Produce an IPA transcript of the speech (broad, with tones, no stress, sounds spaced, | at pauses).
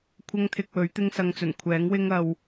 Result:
kʷʰ ɐ˧ ŋ t̪ʰ ɪ˨ k̚ w ɵ˨˥ ɥ t̪ ɪ˥ ŋ s ɐ˧ ŋ t͡s ɵ˨˩ n kʷʰ ɛː˨˥ ŋ w ɪ˥ ŋ ɐ˧ w